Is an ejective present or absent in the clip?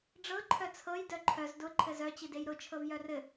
absent